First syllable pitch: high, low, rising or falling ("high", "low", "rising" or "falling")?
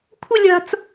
high